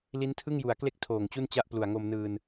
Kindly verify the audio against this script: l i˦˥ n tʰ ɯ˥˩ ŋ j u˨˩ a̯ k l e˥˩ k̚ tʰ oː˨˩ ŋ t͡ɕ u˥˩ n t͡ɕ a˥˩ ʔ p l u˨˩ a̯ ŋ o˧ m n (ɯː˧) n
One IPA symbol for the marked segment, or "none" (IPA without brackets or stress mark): ɯː˧